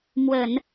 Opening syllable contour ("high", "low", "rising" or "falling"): low